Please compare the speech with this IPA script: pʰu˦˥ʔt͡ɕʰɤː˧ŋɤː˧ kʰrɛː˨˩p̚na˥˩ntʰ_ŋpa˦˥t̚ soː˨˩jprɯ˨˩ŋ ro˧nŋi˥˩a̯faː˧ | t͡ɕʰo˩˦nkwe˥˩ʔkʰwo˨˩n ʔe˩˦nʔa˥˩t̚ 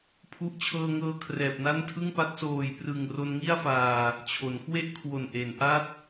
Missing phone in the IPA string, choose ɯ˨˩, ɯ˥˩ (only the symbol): ɯ˥˩